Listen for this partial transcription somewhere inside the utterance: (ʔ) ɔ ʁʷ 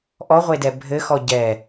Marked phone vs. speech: correct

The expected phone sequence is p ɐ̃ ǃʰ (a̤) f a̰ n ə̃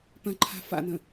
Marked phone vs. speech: correct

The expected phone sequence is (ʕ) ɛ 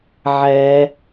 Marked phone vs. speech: correct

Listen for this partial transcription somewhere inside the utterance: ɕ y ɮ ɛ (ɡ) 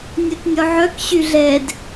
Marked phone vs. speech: incorrect: d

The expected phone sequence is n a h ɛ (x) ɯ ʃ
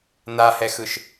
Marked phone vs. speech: correct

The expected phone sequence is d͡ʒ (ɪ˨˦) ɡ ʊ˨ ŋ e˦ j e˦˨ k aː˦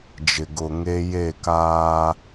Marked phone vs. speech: incorrect: ɪ˨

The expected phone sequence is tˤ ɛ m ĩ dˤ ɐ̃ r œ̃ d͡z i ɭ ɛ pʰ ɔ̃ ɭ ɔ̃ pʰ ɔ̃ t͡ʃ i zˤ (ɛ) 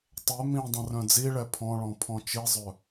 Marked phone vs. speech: incorrect: œ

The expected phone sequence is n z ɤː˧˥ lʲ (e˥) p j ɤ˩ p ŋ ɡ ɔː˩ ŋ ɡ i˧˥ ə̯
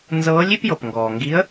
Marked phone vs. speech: incorrect: i˥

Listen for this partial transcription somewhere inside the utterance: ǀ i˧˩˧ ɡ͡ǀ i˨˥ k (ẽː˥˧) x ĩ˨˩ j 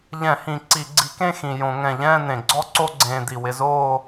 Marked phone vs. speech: incorrect: ẽ˥˧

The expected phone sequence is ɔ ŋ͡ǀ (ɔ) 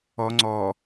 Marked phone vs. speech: correct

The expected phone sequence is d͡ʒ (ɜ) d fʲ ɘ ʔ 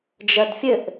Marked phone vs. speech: correct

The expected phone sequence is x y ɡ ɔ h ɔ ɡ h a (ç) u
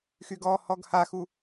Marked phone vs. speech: incorrect: x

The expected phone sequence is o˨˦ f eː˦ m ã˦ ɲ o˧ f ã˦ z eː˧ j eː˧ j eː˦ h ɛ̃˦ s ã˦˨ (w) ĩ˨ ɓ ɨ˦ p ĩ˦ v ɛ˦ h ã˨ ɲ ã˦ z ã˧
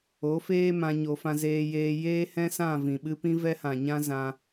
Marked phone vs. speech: incorrect: v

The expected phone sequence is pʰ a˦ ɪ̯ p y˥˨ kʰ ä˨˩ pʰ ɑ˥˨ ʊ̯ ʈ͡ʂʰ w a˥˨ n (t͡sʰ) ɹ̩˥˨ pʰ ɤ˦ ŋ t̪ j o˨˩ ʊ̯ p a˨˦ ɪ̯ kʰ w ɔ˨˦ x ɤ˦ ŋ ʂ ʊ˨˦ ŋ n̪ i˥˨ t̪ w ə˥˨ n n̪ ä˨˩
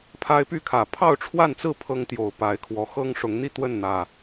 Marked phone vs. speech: incorrect: t͡s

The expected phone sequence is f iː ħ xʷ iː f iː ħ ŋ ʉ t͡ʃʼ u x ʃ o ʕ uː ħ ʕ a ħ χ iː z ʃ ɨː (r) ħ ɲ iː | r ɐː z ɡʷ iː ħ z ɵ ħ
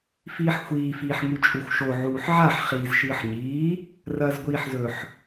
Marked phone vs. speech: incorrect: none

